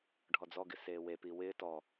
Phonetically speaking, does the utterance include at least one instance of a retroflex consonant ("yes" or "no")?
yes